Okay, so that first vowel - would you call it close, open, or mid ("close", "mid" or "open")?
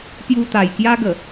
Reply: close